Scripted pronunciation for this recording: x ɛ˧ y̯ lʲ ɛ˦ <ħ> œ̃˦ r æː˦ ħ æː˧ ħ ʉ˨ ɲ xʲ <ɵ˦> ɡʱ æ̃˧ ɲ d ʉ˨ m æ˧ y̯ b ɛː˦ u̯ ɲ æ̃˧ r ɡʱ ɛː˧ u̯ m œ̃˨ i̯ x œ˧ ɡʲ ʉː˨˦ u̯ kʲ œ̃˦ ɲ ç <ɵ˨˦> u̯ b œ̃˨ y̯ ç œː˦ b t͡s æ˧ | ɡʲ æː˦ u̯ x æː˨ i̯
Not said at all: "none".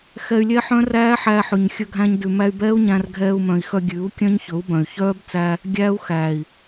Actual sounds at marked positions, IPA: ħ, ɵ˧, ɵ˨˦

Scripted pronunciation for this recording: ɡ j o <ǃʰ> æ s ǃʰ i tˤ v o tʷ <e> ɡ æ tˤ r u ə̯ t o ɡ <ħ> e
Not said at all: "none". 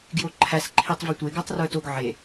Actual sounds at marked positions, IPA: ǃʰ, e, ʕ

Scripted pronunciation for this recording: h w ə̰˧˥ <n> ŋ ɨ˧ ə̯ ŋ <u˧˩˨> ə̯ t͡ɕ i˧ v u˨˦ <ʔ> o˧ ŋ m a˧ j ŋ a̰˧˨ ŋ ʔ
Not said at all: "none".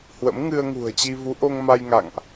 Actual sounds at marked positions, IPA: m, ṳ˨˩, ʔ

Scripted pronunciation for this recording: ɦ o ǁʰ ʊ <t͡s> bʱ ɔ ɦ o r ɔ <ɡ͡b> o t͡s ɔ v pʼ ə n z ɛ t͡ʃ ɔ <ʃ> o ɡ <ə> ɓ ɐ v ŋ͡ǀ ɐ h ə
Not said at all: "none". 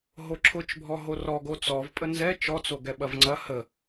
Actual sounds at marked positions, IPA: t͡ʃ, ɡ, t͡s, ɛ

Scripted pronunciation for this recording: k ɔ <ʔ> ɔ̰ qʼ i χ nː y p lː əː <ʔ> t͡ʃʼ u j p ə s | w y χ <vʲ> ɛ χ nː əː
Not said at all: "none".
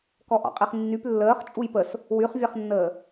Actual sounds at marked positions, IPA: ʔ, χ, vʲ

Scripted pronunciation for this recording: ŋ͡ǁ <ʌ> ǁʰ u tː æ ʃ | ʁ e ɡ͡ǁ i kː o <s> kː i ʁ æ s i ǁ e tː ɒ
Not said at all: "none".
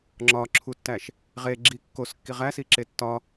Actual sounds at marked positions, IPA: ɒ, s

